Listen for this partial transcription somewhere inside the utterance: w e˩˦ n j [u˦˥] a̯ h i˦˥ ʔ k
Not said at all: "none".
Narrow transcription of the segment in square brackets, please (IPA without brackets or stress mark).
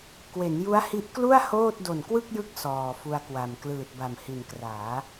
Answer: u˦˥